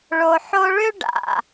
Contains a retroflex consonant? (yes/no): yes